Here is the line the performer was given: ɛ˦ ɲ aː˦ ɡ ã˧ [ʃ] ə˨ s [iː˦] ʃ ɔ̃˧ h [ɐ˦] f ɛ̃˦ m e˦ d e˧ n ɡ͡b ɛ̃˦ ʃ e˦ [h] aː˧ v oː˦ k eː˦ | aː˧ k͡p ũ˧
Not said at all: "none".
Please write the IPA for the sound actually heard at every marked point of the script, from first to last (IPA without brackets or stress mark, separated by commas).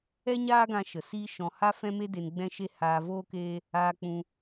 ʃ, iː˦, a˦, h